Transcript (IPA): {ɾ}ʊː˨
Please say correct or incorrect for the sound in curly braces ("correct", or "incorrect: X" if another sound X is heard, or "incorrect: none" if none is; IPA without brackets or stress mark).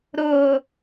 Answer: correct